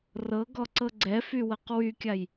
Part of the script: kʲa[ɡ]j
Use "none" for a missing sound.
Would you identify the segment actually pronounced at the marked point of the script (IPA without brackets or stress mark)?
none